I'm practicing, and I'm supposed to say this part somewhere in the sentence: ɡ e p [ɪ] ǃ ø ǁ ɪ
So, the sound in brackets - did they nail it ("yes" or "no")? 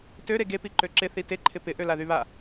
no